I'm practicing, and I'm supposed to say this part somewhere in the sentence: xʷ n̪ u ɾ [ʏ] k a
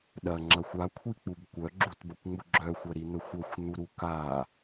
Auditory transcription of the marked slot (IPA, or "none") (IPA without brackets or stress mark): u